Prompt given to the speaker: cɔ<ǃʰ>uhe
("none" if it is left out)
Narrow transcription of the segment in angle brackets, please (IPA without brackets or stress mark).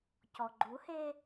ɡ͡ǃ